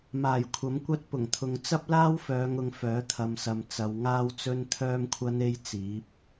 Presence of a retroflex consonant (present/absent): absent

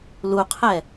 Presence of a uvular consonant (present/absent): present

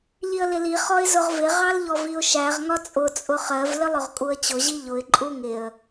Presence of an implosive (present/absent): absent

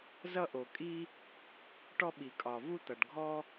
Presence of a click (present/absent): absent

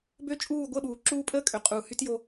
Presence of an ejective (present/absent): present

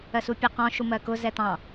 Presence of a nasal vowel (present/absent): present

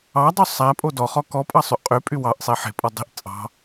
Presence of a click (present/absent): absent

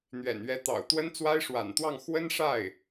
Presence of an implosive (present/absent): absent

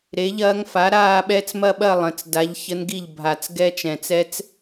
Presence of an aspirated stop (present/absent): absent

